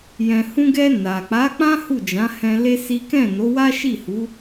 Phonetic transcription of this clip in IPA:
j ɛ̃˨ h ũ˧ ɡ ɛ˧ n a˨ k͡p a˨˦ k͡p ã˦ h u˦˨ d͡ʒ ã˨˦ h ɛ̃˧ l e˦ s i˦ k ɛ̃˦˨ n o˨˦ w a˦ ʃ i˦˨ h u˨˦

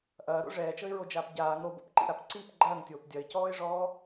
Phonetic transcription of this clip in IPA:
ʔ ɐː ɾ o̰ ʐ ɛː t͡ʃ ɤ ɪ̯ ɹ o d͡ʒ aː p ɟ aː ŋ ɾ o b o̰ p ǃ ḭ ɾ a p ǀ i p ɡ͡ǃ ɐː ŋ tʲ oː p dʲ ɐ ɪ̯ c ɔː ɪ̯ ʐ ɔː

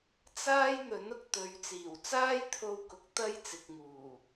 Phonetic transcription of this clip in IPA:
t͡s aː˥ j n̪ ɵ˨˥ n ʊ˨ k̚ t̪ ɵ˨˧ ɥ t͡s iː˨˩ w t͡s aː˥ j t̪ʰ o˧ w k ʊ˨˥ k̚ t̪ ɐ˥ j t͡s ɪ˨ k̚ ŋ uː˨˩

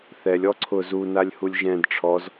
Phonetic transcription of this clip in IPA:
θ ɛ lʲ ɔ ǀʰ ʊ z u n a lʲ h u lʲ ʒ ɛ̃ d ʈ͡ʂʰ ɔ z

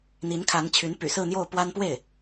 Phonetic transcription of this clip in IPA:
n̪ i˧˥ n kʰ a˧˥ n t͡ɕʰ y˧˥ n p y̰˨˩ s ɹ̩˥˧ n̪ j o˥˩ ʊ̯ p w a˥ n p w e˥˩ ɪ̯

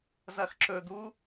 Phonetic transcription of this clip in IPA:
z ɐ x ǁ ɵ d̪ u

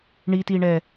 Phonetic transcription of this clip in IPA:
ɳ i t i ɳ ɛ

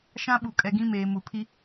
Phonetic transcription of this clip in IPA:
ʃ ã˦ ɓ u˨ kʼ ɛ˨ ɡ ĩ˦ m eː˨ m u˨ pʰ i˦

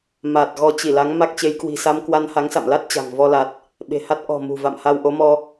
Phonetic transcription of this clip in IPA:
m a˨˩ t̚ ɣ ɔ˧ t͡ɕ i˧˩ l a˨˦ ŋ m a˦˥ k̚ t͡ɕ e˨˦ j k w i̤˨˩ s a˧ m k w a˧ n h a˨˦ ŋ s a̰˧˨ m l a˦˥ t̚ t͡ɕ a̤˨˩ ŋ v ɔ˧ l a˨˩ t̚ | ɓ e̤˨˩ h a˦˥ t̚ ʔ ɔ̤˨˩ m ṳ˨˩ v a̰˧˨ m h a˧ w ʔ o˨˦ m ɔ˧

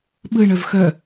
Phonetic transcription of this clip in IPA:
ɓ ɯ ɳ œ v x œ

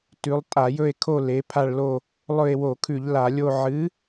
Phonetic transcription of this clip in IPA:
t ʉ˨˥ lˠ tʼ a˧˩˧ j ɵ˦˨ e̯ kʰ o˦˨ l e˨˥ pʰ a˦˨ ɭ l o˦˨ | lˠ ɵ˦˨ e̯ w o˧˩˧ kʰ ʉ˧˩˧ ʎ l a˧˩˧ lʲ o˦˨ ʕ ɨ˨˥

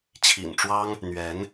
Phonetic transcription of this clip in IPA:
t͡ɕʰ ḭ˨˩ n ʈ͡ʂ w ɑ˦ ŋ | n̪ ɥ ɛ˨˦ n

